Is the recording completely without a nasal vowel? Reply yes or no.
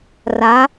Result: yes